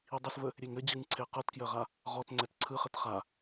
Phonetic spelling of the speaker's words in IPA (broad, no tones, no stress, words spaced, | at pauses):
idˤəsvə | ɾʲeŋɘd͡ʑɯŋǀʰe qɤtkjəʁa | ʁɔtŋ͡ǀɛt ǀʰɯ χɘtχa